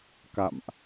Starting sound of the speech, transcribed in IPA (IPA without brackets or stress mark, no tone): k